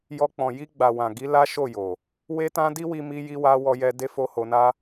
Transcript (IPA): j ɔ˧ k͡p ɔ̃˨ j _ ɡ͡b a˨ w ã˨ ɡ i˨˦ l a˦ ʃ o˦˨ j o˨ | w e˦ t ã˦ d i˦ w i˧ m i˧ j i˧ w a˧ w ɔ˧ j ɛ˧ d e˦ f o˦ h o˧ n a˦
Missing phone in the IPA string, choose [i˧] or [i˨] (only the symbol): i˧